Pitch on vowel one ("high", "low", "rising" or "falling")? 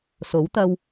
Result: rising